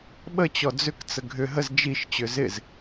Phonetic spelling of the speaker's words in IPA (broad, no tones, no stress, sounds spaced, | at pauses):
ɓ ə t͡ɕ ɔ d͡z ʏ k t͡s ə ɡʱ ʏ ɦ ə z d͡ʒ i ʃ t͡ɕ ʏ z ɪ z